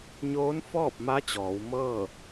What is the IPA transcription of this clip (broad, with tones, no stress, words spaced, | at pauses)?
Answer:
ɲoː˧˥nfɔː˥˨p̚ ma˧˥ t͡ɕɔː˩˧wmɤː˥˨